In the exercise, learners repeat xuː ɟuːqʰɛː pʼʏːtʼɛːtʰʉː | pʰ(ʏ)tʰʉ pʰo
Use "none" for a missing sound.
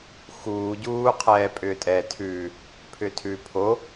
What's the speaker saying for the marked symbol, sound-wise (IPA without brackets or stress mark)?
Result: ʏ